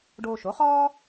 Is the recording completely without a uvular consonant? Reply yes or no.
no